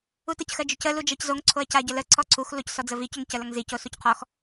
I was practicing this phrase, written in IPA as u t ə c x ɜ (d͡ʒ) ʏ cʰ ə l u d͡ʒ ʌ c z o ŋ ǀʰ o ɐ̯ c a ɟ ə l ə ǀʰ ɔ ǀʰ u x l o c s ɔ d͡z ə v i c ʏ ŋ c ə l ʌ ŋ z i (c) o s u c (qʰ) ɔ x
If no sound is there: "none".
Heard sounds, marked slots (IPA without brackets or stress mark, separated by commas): d͡ʒ, c, qʰ